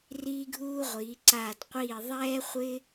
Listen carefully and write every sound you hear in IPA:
r iː˥ ɡʱ uː˥ ʁʷ iː˨˦ ǀ aː˦˨ d qʷ iː˦˨ ðˤ ɛː˥ χʷ ɪ˥

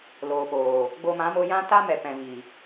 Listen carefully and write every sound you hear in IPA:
l oː˨ p oː˨ | ɡ͡b o˧ m ã˨˦ m o˧ j ã˦ t a˦ m ɛ˨ p ɛ̃˨ v i˨

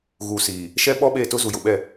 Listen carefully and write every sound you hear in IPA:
ɣ u˨ s iː˨ | ʃ ɛ˦ ɓ ɔ˦ ɓ e˦˨ t ʊ˦ z u˨ j ʊ˨ ɓ ɛ˦˨

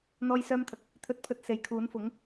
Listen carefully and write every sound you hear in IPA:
n̪ ɔː˥ j s œː˥ m t̪ʰ ɐ˧ k̚ | t̪ʰ ɵ˧ t̚ pʰ ɵ˧ t̚ s e˨ j kʰ uː˨˥ n f ʊ˨˥ ŋ

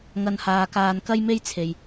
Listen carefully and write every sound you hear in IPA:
ŋ ɐ˧ n h aː˧ k aː˧ n k ɐ˥ j m e˥ j t͡sʰ e˧ j

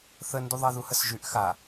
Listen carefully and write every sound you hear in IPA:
θ ə n d u ðˤ a ð u h ə s ʒ y ʔ x a

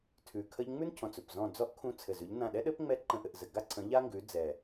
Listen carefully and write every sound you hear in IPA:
tʰ ʉ˨˩ kʰ ə˥ ʎ ŋ͡m ʉ˥ n cʰ ɔ̃˨˩ t͡s ɵ˨˩ p z ɔ̃˦˨ d͡z ɔ˥ ʔ kʰ ũ˦˨ t͡sʰ ɘ˨˩ z ʉ˨˦ ʎ n ã˦˨ ɗ ɛ˥ ɗ ɘ˥ p ŋ͡m ɛ˥ ǃ ə̃˦˨ ʔ ɘ˦˨ ʔ z ɘ˨˩ ɡ a˥ ǀʰ ə̃˨˦ ʎ a˥ ŋ ɡ ʉ˨˦ d͡z ɛ˨˩

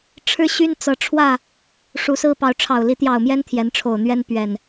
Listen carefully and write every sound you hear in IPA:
ʈ͡ʂʰ ɻ̩˦ ɕ y˦ n t͡s ɤ˨˦ ʈ͡ʂʰ w ä˥˨ | ʂ u˨˦ s ɹ̩˦ p ɑ˨˦ ʊ̯ ʈ͡ʂʰ ɑ˨˩ ʊ̯ l i˨˦ t̪ j ɑ˨˩ ʊ̯ m j ɛ˦ n t̪ʰ j ɛ˨˦ n ʈ͡ʂʰ o˨˩ ʊ̯ n̪ ɥ ɛ˦ n p ɥ ɛ˨˩ n

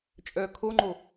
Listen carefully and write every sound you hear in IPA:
t͡ʃʼ œ kʰ o ŋ͡ǃ o

